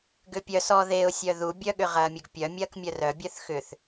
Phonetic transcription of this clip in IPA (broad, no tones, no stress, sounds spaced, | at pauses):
ɡ ʏ pʲ œ s ɔ ð e ʊ̯ sʲ œ ð u bʲ œ ɠ ʏ ʁ ɐː mʲ ʊ ɡ pʲ œ mʲ ɐː k mʲ œ r œ bʲ œ θ x ʏ θ